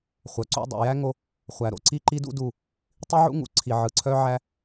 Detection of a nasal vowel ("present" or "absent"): absent